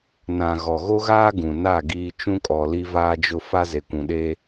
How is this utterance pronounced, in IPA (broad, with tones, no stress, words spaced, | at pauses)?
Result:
nã˨ ɣɔ˨ɣo˦ɣaː˦ ɡũ˨na˦˨ ɡiː˦ t͡ʃũ˦kʼɔ˨ li˦vaː˦d͡ʒʊ˦ fa˦ze˨kʷũ˨ɗe˦